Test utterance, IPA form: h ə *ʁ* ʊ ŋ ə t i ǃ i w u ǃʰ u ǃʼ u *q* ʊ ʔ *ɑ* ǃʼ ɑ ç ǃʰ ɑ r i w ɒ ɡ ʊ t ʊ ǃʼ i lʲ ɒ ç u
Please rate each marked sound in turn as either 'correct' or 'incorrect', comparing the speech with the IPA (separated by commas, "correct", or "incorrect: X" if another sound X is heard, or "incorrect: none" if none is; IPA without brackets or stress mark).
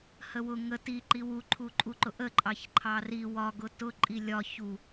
incorrect: w, incorrect: ǃ, incorrect: ə